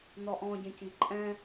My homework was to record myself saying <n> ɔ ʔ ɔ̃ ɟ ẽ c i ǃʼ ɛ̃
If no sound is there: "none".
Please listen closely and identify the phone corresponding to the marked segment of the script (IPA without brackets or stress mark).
n